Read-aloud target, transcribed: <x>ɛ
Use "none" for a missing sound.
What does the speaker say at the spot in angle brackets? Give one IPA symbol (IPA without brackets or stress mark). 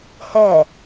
h